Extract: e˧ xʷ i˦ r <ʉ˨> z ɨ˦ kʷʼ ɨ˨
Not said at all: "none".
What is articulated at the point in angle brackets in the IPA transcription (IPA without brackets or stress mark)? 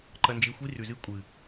ʉ˨